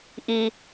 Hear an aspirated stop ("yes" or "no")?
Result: no